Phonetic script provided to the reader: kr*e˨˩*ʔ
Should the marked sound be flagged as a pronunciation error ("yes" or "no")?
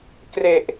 no